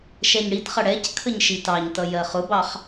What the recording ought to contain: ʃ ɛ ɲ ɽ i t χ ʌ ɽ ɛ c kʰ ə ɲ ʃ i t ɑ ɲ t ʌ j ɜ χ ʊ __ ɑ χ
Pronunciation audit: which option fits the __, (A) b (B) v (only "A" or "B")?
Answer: A